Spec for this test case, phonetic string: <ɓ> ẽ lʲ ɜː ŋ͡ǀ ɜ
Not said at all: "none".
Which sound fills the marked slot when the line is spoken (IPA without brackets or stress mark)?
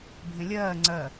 bʱ